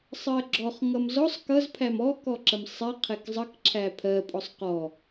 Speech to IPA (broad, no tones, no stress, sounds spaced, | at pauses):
sˤ ɜ ɡ͡ǁ ɔ χ ŋ ʌ m z ɔ sˤ k ʌ z pʰ æ m ɔ k ɔ ǁ ə m sˤ ɛ qʰ ɛ k zˤ ə k ǁʰ æ pʰ ɜ pʼ ɔ sˤ q ɔ